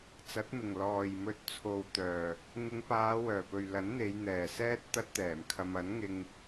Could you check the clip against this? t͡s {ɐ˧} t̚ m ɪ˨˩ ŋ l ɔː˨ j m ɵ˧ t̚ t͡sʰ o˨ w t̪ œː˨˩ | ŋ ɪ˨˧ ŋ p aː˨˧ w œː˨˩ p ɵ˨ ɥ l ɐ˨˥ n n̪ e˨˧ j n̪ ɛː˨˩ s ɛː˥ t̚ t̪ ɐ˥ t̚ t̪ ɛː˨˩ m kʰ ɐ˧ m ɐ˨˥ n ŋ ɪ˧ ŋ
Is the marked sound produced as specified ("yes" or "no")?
no